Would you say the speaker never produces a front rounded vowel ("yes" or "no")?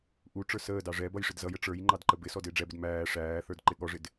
yes